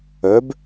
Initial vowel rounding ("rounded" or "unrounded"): rounded